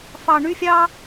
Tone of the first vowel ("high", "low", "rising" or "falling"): high